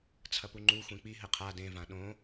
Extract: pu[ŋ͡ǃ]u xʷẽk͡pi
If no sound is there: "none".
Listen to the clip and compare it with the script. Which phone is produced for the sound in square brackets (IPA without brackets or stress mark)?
ŋ͡ǃ